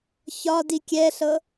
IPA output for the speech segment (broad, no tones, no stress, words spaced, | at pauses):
çɒdi kʲɛɬɤ